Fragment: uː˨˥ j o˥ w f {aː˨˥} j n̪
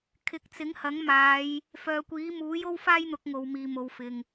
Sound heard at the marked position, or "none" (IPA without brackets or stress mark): aː˥